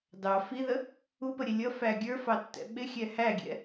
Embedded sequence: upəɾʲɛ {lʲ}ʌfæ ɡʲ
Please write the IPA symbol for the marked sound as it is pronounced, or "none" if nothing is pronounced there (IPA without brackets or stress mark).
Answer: lʲ